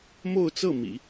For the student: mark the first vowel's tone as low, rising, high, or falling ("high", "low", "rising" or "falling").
falling